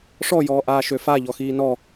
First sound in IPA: ʂ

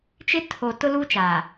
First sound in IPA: t͡ʃ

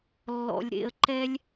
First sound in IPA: lː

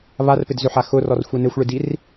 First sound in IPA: β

